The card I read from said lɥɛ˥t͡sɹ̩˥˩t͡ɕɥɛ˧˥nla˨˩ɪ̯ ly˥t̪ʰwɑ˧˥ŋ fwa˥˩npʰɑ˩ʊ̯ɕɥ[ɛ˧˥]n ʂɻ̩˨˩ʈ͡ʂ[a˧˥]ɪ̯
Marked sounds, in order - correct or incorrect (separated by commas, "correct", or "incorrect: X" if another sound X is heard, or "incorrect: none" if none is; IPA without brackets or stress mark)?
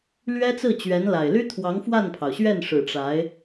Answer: incorrect: ɛ˥˩, correct